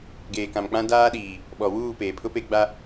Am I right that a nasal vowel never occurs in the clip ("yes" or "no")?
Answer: no